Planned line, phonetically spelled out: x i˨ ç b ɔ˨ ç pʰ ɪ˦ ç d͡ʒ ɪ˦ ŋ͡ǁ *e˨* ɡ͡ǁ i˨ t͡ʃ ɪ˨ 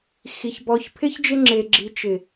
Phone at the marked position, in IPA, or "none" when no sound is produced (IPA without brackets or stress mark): e˨